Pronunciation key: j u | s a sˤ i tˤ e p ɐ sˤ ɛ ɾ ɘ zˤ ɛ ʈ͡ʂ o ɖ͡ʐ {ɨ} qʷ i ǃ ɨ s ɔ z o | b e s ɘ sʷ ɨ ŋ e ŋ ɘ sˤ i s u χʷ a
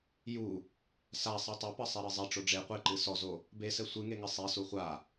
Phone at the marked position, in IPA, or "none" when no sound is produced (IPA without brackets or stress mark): e